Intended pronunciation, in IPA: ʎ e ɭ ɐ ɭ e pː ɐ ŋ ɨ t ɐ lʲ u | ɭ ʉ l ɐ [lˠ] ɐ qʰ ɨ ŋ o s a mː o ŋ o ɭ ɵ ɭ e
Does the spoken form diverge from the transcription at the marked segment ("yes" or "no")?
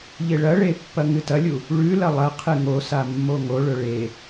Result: no